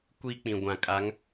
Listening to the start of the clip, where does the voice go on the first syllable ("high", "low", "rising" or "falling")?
high